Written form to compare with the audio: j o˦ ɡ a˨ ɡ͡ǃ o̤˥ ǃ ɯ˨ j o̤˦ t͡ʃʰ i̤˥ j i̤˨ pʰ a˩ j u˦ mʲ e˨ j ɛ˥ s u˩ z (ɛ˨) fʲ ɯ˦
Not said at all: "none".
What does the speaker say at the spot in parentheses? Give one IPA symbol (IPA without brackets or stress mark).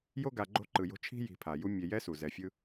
ɛ˨